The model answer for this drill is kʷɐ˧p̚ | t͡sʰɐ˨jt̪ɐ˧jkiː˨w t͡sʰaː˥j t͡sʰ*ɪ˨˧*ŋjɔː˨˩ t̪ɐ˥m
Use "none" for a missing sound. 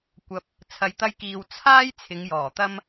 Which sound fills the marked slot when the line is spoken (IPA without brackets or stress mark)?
ɪ˨˧